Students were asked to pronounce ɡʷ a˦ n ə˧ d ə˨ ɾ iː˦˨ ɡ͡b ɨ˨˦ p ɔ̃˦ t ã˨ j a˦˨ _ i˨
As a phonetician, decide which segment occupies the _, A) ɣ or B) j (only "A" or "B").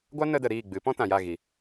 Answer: A